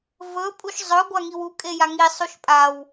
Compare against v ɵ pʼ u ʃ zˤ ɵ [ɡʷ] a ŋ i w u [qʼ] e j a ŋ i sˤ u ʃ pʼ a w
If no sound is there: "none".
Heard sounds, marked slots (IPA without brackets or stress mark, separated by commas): ɡʷ, kʼ